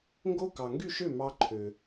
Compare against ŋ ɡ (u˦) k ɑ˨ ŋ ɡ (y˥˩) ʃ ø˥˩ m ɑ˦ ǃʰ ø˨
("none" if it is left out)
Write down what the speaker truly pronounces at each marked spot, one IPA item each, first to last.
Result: o˦, y˥˩

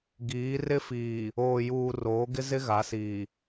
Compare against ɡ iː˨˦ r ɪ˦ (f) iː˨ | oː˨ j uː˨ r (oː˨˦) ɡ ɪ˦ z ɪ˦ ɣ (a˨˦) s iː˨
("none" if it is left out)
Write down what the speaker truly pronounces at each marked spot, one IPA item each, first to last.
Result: f, oː˨˦, a˨˦

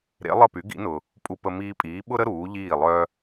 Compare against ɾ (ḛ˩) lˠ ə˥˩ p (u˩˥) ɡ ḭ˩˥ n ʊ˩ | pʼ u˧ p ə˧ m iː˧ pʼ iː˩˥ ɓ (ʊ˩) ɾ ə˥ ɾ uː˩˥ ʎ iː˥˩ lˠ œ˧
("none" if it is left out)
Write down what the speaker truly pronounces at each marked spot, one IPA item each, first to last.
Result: ḛ˩˥, y˩˥, ʊ˥

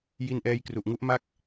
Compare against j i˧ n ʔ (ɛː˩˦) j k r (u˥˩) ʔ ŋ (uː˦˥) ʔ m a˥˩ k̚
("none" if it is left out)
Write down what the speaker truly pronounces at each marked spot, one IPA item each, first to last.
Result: ɛː˧, u˨˩, u˦˥

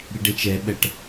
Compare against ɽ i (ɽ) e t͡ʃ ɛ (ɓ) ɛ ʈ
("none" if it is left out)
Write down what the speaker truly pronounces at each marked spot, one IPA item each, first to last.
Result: ɖ, ɓ

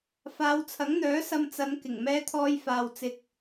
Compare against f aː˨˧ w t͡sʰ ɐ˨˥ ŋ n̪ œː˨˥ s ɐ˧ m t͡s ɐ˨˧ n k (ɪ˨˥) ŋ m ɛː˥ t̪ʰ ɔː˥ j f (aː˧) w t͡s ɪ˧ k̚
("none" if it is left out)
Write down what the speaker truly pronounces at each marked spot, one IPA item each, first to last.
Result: ɪ˨˩, aː˧

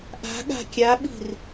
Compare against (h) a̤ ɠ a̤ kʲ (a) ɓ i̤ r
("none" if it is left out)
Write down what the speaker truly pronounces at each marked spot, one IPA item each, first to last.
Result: ʔ, a

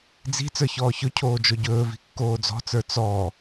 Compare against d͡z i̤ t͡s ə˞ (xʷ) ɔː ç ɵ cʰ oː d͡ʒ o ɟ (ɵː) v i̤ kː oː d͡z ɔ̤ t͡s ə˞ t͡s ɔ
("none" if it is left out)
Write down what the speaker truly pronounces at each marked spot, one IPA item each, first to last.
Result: ç, ɵː

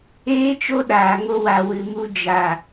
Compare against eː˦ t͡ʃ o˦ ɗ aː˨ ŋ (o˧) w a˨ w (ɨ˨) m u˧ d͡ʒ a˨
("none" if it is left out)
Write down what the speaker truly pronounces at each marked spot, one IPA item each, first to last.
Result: o˧, ɨ˨

